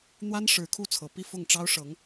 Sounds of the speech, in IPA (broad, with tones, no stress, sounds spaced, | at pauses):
n̪ w a˥ n ʂ ɻ̩˧˥ kʰ u˥˩ t͡sʰ ɤ˨˩ p i˥˧ f ʊ˥˩ ŋ ʈ͡ʂ ɑ˥ ʊ̯ ʂ ɤ˧˥ ŋ